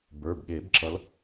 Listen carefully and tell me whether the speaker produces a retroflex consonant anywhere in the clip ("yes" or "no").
no